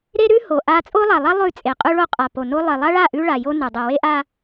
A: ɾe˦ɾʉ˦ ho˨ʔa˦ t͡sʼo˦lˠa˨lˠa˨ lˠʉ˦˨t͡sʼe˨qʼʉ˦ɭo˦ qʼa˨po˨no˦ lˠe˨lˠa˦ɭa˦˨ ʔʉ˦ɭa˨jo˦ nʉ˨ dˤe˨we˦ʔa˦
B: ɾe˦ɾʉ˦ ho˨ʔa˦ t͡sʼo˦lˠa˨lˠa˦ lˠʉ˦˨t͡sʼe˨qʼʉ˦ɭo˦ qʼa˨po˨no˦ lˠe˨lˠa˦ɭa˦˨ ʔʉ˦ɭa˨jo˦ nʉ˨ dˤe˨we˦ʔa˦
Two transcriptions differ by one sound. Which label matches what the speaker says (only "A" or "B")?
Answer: B